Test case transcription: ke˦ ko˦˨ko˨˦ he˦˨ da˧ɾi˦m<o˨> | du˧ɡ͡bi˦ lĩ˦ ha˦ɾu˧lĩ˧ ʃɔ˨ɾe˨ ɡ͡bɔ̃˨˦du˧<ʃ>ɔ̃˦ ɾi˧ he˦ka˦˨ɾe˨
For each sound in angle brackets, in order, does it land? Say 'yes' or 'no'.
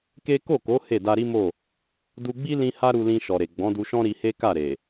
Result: no, yes

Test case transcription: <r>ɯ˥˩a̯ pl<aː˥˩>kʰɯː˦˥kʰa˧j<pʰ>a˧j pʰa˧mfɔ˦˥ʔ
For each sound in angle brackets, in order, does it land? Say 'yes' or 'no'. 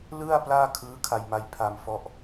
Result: no, yes, no

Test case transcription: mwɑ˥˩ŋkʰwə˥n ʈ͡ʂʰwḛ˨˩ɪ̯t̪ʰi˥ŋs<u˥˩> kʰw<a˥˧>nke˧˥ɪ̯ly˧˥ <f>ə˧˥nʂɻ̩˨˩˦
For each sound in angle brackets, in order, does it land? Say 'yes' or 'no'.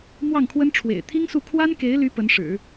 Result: yes, no, no

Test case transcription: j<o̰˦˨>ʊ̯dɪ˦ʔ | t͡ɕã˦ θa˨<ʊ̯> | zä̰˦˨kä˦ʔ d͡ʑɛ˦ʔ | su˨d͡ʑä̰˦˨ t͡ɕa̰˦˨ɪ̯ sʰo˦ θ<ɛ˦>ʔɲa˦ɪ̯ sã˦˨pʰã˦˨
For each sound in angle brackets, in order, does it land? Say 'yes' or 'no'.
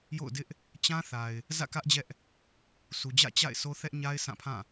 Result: yes, no, yes

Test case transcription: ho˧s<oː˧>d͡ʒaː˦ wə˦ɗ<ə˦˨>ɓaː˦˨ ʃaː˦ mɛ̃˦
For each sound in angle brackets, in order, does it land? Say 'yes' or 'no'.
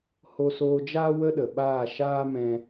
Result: yes, no

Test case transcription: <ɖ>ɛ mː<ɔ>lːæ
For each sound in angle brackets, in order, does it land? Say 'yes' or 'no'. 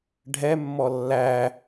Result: no, yes

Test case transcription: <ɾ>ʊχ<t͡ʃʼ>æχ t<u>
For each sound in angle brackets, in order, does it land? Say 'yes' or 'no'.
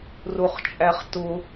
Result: no, yes, no

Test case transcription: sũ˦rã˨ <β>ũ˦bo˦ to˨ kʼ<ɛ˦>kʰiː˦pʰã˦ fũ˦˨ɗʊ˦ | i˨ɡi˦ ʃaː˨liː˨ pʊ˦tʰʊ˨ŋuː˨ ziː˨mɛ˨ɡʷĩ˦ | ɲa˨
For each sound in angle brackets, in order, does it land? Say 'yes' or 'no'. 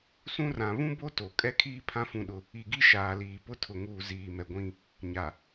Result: yes, yes

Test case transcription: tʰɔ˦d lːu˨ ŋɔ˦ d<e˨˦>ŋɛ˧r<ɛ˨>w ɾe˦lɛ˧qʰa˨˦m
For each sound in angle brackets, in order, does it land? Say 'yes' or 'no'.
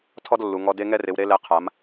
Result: no, no

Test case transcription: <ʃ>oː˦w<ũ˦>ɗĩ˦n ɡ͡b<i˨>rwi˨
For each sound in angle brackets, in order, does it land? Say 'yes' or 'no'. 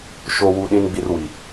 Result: yes, no, no

